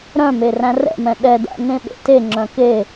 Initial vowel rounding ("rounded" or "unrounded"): rounded